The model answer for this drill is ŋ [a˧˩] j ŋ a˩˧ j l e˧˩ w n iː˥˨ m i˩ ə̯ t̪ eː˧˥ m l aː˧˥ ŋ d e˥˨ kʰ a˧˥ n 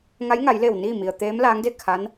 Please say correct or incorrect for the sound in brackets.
incorrect: a˧˥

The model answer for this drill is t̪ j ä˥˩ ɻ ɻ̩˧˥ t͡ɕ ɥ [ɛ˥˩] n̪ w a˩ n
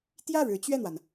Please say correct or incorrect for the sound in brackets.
correct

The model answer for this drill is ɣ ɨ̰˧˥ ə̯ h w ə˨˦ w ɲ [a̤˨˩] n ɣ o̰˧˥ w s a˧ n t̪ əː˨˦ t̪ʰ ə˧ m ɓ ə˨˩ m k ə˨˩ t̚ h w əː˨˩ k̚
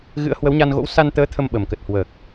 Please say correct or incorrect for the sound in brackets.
incorrect: a˧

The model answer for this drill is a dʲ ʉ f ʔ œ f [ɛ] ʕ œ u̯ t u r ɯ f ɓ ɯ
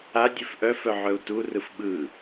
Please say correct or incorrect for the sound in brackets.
incorrect: œ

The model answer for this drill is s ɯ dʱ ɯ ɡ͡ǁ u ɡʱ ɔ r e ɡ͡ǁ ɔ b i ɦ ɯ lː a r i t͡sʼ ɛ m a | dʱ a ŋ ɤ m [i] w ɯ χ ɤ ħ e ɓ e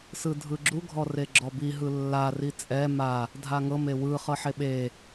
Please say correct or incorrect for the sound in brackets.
incorrect: e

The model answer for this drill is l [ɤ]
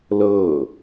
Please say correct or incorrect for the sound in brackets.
correct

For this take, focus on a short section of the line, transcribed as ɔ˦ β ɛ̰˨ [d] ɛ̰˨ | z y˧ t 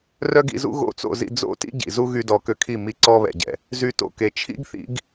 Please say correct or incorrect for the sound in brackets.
incorrect: ɟ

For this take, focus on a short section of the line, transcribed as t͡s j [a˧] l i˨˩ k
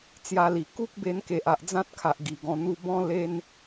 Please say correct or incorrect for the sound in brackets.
correct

